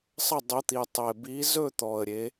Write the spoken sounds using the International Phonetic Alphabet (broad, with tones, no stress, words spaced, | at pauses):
sˤə˥˩ dˤɵ˨˥t̪i˨˩ tˤe˨˩bi˨˥ zɵ˥˩ t̪ɔ˨˩ə̯ɾʲe˨˥